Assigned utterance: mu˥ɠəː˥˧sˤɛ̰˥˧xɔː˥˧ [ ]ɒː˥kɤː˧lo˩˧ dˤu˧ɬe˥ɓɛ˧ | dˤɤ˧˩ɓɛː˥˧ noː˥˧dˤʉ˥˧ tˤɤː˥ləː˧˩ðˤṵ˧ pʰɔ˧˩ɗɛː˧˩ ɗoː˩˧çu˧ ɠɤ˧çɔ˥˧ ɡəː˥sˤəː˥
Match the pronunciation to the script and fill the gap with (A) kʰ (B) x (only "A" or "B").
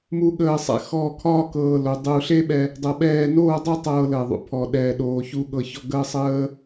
A